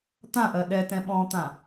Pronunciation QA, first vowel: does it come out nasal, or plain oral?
nasal